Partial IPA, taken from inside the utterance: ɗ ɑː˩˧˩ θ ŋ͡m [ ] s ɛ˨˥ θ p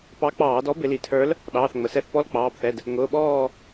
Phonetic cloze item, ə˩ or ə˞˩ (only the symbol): ə˩